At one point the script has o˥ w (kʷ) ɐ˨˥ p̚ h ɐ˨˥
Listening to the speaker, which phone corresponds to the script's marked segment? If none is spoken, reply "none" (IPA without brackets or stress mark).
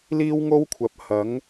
kʷʰ